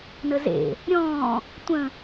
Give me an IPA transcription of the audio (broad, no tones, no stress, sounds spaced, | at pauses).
n ə z ḛ | ɾʲ ɔ̃ː | tʷ ə̃